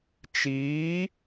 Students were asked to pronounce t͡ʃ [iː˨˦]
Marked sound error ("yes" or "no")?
no